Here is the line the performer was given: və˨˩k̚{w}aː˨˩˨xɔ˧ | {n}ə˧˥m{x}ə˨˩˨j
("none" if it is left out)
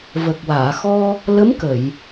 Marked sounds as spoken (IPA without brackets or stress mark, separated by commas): w, l, k